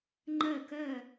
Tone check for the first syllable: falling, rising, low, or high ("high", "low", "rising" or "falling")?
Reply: falling